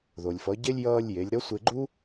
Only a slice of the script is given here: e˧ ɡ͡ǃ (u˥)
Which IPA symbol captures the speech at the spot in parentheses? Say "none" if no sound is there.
u˥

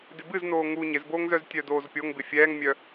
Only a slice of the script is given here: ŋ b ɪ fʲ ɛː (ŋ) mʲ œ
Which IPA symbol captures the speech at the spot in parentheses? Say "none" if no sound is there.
ŋ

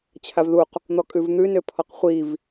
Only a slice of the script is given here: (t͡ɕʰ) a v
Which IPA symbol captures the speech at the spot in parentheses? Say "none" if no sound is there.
t͡ɕʰ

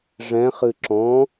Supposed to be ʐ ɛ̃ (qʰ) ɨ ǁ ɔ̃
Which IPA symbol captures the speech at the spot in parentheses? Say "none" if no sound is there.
χ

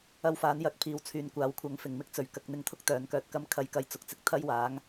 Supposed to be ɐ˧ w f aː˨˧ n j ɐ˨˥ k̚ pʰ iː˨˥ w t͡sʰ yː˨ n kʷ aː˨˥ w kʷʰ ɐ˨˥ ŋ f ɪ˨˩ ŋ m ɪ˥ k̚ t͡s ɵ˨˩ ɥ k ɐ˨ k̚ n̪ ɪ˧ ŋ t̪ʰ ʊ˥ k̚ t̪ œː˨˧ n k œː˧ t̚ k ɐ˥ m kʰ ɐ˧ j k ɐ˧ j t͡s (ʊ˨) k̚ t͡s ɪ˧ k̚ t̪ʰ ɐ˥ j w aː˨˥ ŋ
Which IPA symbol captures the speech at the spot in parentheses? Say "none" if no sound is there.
ʊ˨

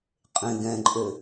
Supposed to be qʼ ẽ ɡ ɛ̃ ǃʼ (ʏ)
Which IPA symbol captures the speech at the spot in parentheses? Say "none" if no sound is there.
ʏ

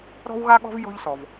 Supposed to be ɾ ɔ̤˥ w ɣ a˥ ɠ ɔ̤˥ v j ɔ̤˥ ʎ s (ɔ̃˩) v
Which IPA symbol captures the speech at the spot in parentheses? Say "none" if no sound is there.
ɔ˩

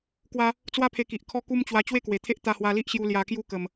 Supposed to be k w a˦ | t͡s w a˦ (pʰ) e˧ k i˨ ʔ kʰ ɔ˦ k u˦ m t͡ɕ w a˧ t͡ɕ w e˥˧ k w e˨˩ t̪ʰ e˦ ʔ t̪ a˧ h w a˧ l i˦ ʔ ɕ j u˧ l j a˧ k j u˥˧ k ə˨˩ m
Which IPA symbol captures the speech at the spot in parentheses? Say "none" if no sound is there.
pʰ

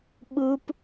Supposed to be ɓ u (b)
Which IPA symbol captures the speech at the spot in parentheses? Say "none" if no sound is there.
p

